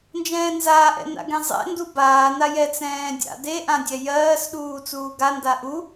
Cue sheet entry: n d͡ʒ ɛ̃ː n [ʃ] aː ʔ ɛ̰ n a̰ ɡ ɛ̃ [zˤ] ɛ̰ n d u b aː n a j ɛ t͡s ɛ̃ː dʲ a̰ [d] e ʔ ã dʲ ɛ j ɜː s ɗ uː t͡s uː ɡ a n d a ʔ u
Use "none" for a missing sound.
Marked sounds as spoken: z, zˤ, d

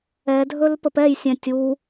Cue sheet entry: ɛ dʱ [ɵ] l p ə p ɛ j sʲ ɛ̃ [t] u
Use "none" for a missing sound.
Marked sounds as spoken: ɵ, tʲ

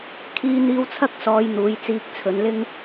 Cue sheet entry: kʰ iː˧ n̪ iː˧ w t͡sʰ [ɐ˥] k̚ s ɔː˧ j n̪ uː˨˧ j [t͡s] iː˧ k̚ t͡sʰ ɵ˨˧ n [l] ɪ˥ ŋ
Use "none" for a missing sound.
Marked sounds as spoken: ɐ˥, t͡s, l

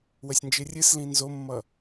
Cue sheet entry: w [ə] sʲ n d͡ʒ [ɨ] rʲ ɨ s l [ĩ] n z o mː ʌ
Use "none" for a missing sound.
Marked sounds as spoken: ə, ɨ, ĩ

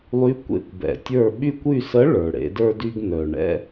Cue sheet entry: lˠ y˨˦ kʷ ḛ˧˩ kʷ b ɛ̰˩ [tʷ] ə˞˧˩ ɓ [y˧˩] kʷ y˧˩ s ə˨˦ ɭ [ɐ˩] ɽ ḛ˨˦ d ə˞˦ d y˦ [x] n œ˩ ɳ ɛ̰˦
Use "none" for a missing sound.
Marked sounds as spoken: tʲ, y˧˩, ə˞˩, ɡ

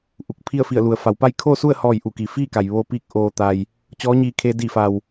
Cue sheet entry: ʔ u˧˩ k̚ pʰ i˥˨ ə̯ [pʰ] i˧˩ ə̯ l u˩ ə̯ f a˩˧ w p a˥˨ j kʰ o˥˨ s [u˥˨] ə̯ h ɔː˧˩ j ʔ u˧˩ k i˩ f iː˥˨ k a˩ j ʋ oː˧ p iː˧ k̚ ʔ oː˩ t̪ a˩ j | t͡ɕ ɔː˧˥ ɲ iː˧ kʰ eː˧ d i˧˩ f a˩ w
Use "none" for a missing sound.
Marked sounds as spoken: f, u˥˨

